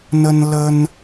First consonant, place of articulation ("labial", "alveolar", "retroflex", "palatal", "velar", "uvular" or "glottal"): alveolar